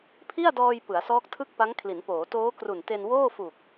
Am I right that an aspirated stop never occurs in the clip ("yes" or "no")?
no